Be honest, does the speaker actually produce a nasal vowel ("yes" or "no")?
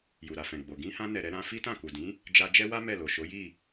yes